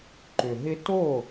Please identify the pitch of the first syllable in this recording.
low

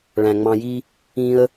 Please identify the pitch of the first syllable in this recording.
low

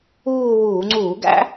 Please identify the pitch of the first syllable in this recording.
falling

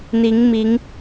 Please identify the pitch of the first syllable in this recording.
rising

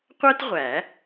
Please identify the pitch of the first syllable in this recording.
high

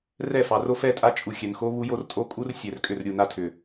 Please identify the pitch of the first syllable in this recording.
falling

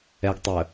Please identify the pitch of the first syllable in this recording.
low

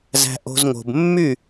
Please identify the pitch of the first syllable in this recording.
high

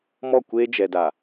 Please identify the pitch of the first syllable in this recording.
falling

